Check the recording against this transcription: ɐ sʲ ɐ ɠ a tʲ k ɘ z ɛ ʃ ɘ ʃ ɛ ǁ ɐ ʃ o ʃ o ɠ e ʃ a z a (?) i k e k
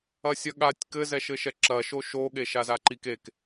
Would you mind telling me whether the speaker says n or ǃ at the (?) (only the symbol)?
ǃ